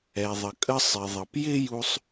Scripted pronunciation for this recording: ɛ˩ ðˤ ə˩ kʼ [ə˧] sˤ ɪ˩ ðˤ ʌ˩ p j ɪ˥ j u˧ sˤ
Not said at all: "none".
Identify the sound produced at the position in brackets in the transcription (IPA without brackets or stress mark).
ə˧